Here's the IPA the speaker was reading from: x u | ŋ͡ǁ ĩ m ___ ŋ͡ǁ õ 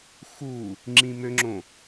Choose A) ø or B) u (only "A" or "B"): A